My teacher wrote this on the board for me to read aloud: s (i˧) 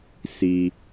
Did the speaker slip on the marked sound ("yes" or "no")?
no